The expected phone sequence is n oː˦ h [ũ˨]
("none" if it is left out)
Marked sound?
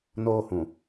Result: ũ˨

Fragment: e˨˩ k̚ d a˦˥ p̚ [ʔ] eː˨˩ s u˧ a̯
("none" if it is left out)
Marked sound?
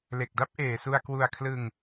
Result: ʔ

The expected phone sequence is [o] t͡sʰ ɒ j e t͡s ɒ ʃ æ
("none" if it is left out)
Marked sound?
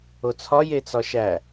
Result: o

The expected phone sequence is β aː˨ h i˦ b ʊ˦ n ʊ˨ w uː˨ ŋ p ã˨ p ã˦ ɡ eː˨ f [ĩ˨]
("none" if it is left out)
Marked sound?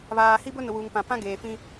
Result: ĩ˦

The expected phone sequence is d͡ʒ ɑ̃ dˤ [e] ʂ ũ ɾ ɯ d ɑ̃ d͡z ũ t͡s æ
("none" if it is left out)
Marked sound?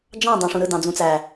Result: ẽ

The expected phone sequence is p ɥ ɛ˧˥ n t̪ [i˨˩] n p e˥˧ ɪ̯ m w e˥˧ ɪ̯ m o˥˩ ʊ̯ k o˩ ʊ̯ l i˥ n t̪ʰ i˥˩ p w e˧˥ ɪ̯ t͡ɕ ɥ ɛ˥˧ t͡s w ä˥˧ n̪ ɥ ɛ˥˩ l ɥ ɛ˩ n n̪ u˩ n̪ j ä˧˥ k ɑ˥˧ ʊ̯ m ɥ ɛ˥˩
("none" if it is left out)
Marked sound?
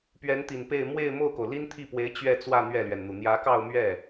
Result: i˨˩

